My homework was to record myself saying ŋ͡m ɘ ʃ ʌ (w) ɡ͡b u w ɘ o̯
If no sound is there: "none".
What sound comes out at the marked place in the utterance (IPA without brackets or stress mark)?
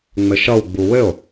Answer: w